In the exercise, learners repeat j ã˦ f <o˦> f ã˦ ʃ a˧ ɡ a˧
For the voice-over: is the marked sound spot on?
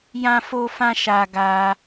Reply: yes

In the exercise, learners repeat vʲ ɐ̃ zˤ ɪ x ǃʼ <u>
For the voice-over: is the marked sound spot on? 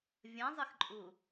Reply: yes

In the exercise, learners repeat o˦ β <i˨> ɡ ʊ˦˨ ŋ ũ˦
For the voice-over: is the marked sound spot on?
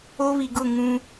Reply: yes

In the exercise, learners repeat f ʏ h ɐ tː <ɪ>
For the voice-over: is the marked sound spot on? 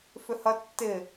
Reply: yes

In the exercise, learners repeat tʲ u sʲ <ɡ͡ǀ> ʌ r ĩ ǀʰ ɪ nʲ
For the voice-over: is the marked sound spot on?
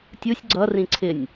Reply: yes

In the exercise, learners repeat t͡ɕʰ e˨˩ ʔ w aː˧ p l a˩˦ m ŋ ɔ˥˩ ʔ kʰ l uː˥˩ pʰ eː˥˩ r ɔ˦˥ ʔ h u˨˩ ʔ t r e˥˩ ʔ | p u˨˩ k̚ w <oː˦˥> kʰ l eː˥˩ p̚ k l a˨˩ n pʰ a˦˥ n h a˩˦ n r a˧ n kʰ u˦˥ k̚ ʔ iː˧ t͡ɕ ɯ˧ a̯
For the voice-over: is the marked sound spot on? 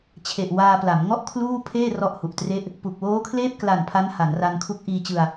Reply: yes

